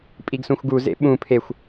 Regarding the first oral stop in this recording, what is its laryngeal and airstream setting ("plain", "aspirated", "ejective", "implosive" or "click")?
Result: ejective